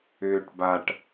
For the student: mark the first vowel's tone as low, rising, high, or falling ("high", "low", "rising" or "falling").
low